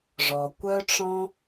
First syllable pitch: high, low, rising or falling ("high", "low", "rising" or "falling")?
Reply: low